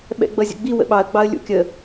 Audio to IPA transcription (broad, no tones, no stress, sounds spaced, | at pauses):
ɓ ɛ̰ ɡ͡b ʌ zʲ ə̰ ɡ͡b i w ə̰ ɓ ɑ ə̯ ɡ͡b ɑ ə̯ lʲ ṵ kʲ ə